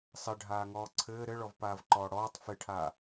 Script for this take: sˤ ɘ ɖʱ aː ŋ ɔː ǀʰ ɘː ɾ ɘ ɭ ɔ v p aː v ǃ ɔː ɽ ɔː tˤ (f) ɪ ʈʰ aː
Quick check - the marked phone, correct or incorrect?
correct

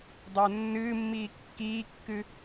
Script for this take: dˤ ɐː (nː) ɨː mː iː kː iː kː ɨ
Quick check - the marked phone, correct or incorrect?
correct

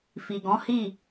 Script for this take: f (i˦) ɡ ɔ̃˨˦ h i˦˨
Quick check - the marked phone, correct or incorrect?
incorrect: i˨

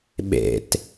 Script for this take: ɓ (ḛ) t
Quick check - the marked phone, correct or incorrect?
correct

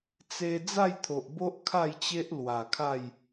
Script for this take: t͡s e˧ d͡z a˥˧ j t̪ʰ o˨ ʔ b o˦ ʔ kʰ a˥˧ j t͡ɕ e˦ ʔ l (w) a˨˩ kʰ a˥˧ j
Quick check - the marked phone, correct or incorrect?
correct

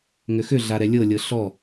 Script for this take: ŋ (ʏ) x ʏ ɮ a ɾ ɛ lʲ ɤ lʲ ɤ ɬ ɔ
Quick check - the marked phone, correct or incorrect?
correct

